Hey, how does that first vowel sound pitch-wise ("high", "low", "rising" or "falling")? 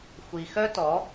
low